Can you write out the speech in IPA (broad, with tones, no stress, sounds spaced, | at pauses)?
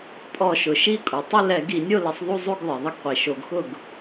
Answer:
pʼ ɔ˧˩˧ ʃ ʊ˩ ʃ i˥˨ kʼ u˩ tˤ ɪ˥˨ l ɛ˧˩˧ ɡ i˧˩˧ nʲ o˥˨ l ɪ˧˩˧ sˤ ðˤ u˥˨ zˤ u˥˨ ɡ ðˤ e˩ ðˤ ɪ˥˨ ɡ qʷ i˩ ʃ o˧˩˧ ɡ x ʊ˥˨ ɡ